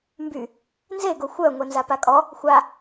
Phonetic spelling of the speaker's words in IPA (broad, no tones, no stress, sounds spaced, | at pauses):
m b y | n z e ɡ o xʷ œ ŋʷ ɛ n z a p a kʼ ɔ | xʷ a